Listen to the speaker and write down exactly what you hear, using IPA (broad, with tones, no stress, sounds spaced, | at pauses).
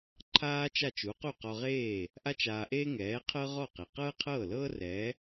ǃʰ aː˥ t͡ʃ a˥˩ t͡ʃ u˩˥ q u˥˩ q ɔ˧ ʁ eː˥˩ | ʔ a˥ t͡ʃ aː˧ ʔ eː˥ ŋ ɛː˩˥ qʰ ɤ˥ ʁ ɔ˥˩ q e˩ q ɤː˥ qʰ ɤː˥˩ l ɤː˥ r ɛ˩˥